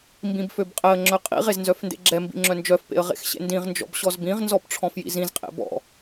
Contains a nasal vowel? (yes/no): yes